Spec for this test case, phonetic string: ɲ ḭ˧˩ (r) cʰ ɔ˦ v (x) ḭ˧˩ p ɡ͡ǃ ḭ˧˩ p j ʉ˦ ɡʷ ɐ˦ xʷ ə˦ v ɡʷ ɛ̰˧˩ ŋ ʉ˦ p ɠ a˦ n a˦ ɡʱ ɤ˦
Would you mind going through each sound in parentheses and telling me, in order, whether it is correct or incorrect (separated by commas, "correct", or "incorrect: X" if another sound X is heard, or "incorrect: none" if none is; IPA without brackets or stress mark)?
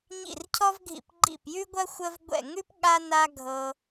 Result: correct, incorrect: ɡʱ